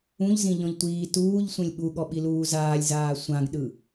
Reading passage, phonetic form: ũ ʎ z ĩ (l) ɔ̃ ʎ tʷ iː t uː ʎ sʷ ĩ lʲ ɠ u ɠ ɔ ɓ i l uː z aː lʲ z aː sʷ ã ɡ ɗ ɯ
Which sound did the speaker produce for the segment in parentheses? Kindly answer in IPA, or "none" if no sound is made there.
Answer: ʎ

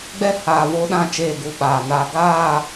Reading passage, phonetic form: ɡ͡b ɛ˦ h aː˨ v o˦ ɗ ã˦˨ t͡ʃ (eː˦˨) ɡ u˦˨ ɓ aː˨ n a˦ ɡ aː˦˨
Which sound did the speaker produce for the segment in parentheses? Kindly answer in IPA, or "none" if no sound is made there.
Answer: eː˦˨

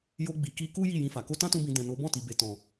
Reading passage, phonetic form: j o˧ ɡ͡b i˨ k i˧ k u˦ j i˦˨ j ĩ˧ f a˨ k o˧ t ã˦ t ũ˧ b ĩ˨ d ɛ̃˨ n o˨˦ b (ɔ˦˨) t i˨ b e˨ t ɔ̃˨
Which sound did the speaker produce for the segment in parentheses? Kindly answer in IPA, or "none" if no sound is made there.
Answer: ɔ̃˦˨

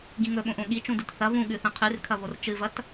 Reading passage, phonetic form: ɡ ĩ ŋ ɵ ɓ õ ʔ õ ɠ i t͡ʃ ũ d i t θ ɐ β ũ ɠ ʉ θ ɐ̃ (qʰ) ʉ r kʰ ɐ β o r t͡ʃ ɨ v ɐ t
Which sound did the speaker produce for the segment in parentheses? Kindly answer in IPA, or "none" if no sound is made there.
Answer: qʰ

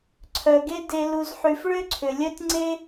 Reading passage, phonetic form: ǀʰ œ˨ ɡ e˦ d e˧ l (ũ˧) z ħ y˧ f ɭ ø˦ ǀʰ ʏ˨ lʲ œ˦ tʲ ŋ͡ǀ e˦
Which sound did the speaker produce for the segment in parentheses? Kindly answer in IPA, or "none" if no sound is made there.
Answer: u˧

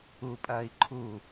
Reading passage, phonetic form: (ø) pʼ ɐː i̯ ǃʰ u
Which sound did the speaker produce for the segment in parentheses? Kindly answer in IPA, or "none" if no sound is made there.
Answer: u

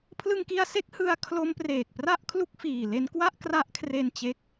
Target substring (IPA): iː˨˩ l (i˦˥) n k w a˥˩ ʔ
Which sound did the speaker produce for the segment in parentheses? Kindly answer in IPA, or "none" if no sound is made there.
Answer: e˦˥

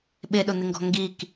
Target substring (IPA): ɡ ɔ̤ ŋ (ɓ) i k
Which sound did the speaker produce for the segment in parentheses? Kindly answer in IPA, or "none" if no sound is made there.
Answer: ɡ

